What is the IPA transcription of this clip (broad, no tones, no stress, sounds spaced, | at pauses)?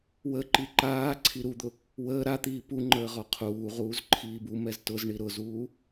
w ə ǃ i ǃ aː ǀʰ i ɾ u d̪ ʊ | w əː ɾ a t̪ iː p u ŋ͡ǃ əː ʁ ɔ qʰ uː ʁ uː z ǃʰ iː b u m ɛ z t ʊ z ɳ i ɾ ʊ z uː